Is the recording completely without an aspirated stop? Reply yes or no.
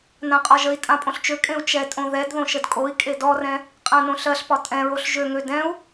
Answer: yes